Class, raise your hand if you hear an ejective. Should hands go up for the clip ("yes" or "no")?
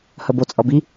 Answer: yes